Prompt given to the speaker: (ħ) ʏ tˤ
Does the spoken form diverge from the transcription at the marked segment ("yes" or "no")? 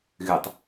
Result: yes